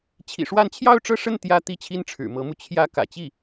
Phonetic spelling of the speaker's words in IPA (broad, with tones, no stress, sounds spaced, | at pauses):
t͡ɕʰ ḭ˨˩ ʂ w a˥˧ n t͡ɕʰ j ɑ˥˧ ʊ̯ ʈ͡ʂ ɤ˥˧ ʂ ə˥˩ n t̪ j ä˥ t̪ i˥˩ t͡ɕʰ i˥ n ʈ͡ʂʰ ɻ̩˨˩ m ɤ˧˥ m u˧ t͡ɕʰ j ä˥˩ k ä̰˨˩ t͡ɕ i˥˩